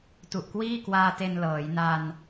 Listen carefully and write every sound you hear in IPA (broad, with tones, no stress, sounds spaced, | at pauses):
t u˨˩ ʔ k w iː˥˩ k w aː˧ t e˧ n l ɤː˩˦ j n a˧ n